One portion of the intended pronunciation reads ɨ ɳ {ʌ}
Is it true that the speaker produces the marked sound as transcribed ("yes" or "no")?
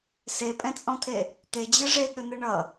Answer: yes